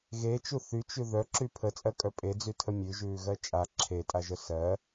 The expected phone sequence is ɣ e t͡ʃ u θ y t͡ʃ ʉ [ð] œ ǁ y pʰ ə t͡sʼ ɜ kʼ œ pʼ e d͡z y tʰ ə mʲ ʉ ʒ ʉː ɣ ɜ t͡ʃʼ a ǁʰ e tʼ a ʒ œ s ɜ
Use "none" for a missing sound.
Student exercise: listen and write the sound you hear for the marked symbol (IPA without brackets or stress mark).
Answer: ð